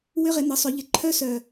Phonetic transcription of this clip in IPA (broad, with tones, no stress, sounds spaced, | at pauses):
w ʏ˦˥ ʁ ɪ˨˩˦ n̪ ə˩˥ sˤ ʏ˨˩˦ ʎ ɪ˩˥ ǃʰ œ˦˥ s œ˧˩